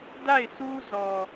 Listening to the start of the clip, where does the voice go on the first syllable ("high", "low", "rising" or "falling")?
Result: falling